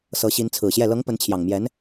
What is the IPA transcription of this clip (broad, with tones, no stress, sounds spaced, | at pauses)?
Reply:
s ɤ˧˥ ɕ i˧˥ n t͡sʰ ɹ̩˨˩ ɕ j ɛ˥˩ l ɤ˧˥ ŋ p ə˧˥ n t͡ɕʰ j ɑ˨˩ ŋ m j ɛ˧˥ n